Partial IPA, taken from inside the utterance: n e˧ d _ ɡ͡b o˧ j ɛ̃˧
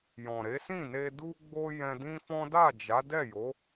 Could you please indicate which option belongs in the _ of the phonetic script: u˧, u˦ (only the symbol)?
u˧